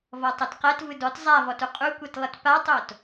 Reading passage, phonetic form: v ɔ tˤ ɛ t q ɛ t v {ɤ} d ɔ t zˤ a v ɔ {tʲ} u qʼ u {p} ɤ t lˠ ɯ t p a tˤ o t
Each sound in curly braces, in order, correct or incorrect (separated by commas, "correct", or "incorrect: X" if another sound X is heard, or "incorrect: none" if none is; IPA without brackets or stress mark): incorrect: ɯ, incorrect: t, incorrect: kʷ